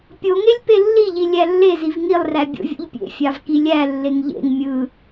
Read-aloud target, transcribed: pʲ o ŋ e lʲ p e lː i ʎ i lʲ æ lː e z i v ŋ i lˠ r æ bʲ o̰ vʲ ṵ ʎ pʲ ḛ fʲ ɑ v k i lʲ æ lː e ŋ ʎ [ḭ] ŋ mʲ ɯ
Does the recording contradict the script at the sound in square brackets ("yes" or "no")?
yes